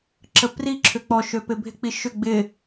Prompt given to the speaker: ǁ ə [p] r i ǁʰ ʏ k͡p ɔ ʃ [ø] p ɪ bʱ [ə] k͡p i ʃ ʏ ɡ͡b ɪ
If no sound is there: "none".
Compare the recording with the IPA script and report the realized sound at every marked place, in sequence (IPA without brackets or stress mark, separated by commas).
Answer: p, ø, ɪ